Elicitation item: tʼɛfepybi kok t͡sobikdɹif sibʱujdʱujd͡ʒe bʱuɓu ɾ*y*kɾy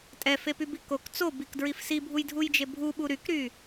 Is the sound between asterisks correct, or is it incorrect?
correct